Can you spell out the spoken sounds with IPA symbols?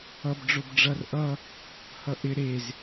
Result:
ʌbɖ͡ʐob ɖ͡ʐʌr ʔʌ | hʌʔɪ ɾez

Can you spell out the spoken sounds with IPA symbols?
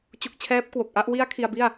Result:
t͡ɕu˨˩k̚ t͡ɕʰɛː˦˥p̚kwo˨˩k̚ʔa˥˩ʔ wi˦˥a̯ kʰi˧a̯bi˥˩a̯

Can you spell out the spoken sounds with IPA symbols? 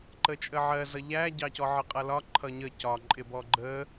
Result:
ǃət͡ʃʼəʕɜ zʌʎæɟɑcɔ ʕəqʼʌlɒ ǃʰʌɲə cɒǃʼɪbɔ ɡ͡ǃə

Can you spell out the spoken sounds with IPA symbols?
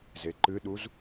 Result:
zeǃɨɗuz

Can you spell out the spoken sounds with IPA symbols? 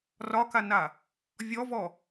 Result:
rɒkana | vʲɔvɔ

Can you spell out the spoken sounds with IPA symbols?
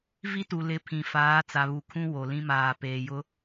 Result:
vi˦tu˨ lɪ˨˦ pʰĩ˨faː˨˦ t͡sa˨βu˨kʰũ˦ wo˨ lĩ˦maː˨peː˨ jʊ˦

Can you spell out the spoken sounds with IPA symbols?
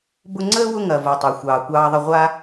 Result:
bʊ˦ŋ͡ǀəː˥wʊ˦ ŋɐ˨ vo˨ tˤɑ˨xʷɑː˨kʷɑː˦ðˤə˦ ʁʷa˦

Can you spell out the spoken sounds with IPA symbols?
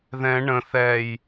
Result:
ðɛ̃ ɳə̃ θɛj

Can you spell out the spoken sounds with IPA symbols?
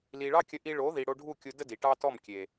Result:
li˨ɭɑ˦kʲə˧ʔi˧ ɭo˨˦ði˨ ɽo˧ɖʱu˦˨kʲu˧də˦ di˨ʈɑ˦tɔ˦˨m kʲe˨

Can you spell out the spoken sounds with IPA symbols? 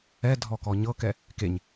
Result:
ɛ dʱɔkɔɲɤkɛ | keɲ

